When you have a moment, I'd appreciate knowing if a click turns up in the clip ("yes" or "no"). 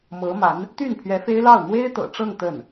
no